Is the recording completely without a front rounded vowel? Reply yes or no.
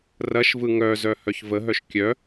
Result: no